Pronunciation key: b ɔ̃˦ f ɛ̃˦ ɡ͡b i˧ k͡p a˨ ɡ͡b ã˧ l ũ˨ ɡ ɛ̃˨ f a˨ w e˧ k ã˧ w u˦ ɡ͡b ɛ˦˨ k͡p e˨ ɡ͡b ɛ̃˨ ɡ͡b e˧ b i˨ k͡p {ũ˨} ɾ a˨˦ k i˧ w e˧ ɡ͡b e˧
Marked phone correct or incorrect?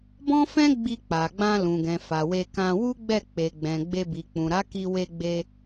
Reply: correct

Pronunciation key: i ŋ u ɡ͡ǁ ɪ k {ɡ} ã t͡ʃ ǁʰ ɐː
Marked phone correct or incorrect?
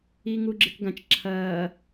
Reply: correct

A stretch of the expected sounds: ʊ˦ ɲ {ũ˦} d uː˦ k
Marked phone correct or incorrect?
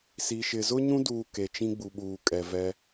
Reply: correct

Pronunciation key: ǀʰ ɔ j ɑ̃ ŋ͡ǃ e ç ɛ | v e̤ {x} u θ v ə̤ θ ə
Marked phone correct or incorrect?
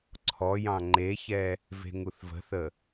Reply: incorrect: ŋ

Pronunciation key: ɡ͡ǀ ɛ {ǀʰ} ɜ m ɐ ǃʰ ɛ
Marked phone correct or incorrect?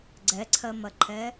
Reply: correct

